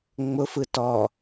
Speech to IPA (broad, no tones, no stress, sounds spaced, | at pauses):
ŋ͡m ʊ f ɯ t ɔ